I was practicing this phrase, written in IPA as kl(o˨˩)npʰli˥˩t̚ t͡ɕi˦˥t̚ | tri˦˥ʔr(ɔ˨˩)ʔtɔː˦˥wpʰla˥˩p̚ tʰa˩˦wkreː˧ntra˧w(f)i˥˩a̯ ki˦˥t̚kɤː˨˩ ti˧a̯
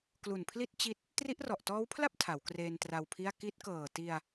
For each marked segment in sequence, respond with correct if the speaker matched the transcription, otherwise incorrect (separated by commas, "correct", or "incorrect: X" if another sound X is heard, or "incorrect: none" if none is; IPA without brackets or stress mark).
incorrect: u˨˩, correct, incorrect: pʰ